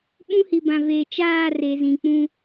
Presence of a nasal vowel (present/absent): present